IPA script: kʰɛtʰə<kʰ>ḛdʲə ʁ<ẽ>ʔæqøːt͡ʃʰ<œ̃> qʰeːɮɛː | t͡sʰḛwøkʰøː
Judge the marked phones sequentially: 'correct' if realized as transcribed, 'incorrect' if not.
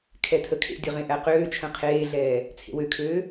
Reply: correct, correct, incorrect: ə̃

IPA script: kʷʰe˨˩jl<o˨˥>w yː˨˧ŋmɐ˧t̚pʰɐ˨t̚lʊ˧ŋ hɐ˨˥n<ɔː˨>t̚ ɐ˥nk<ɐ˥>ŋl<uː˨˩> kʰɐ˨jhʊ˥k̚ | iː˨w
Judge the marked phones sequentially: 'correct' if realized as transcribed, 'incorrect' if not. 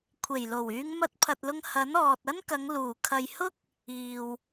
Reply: incorrect: o˨˩, correct, incorrect: ɐ˨˧, correct

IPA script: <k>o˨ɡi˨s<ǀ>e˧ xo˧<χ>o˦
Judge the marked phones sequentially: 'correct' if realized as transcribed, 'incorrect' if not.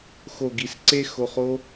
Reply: incorrect: x, correct, correct

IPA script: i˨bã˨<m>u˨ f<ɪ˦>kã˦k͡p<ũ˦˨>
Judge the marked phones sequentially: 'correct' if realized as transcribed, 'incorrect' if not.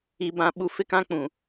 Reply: incorrect: ɓ, correct, incorrect: ũ˨

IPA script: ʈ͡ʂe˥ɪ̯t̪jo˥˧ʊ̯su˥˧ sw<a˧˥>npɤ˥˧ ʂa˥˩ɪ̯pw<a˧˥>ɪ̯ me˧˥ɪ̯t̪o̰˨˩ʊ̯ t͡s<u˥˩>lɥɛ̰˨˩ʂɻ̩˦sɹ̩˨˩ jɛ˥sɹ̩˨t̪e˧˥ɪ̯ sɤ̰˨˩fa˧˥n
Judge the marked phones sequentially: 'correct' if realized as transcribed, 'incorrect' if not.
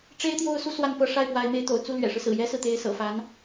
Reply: incorrect: a˥˧, correct, correct

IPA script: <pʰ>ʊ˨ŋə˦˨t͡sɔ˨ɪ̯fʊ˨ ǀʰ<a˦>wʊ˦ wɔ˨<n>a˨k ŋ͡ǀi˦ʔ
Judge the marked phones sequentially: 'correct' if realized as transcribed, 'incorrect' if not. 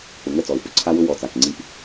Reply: incorrect: p, correct, incorrect: t͡s

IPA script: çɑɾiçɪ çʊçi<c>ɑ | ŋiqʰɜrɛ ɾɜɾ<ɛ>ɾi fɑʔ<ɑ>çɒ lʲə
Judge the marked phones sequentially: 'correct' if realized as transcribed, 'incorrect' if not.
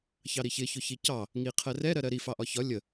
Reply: correct, incorrect: ɜ, incorrect: ɒ

